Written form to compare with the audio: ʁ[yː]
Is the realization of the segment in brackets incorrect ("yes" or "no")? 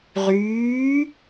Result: no